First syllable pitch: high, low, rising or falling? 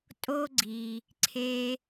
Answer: high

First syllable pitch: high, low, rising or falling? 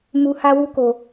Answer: low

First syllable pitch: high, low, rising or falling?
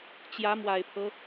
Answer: rising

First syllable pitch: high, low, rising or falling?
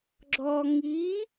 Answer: low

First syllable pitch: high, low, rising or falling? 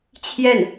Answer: falling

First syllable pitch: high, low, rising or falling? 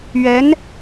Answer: rising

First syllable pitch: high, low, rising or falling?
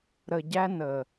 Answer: low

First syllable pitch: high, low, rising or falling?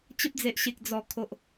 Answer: high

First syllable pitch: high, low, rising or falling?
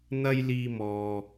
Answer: high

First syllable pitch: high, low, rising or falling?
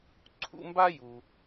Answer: high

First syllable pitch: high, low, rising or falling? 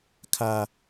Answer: high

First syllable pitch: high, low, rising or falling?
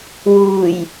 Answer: low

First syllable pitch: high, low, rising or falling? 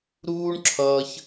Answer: high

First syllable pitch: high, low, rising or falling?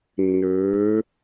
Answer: rising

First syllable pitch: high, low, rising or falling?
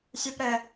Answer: high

